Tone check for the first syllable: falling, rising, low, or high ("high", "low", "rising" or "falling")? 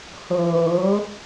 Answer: rising